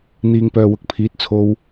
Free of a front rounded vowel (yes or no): no